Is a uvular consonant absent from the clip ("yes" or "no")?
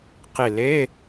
no